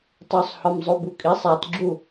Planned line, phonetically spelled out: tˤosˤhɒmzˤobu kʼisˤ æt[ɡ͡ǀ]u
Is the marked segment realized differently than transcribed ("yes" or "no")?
yes